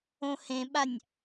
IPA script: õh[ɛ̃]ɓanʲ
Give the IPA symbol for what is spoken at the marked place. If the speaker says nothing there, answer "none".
ẽ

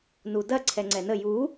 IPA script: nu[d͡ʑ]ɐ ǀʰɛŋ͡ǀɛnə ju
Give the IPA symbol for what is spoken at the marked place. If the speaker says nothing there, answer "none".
d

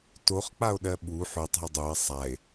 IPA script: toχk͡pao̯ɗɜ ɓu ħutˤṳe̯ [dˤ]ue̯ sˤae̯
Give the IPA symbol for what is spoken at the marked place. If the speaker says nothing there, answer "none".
dˤ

